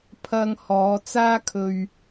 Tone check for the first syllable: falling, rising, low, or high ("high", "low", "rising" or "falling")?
high